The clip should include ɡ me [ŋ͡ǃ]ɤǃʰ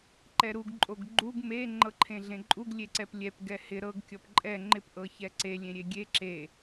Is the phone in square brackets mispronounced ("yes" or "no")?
no